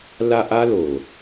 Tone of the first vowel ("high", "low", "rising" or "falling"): high